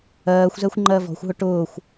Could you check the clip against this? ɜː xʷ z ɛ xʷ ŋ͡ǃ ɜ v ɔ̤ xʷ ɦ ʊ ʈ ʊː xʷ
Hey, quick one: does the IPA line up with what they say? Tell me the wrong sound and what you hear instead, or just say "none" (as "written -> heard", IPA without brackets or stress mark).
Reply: none